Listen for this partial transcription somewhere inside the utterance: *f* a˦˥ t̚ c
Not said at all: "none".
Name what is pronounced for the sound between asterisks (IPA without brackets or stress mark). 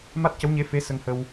m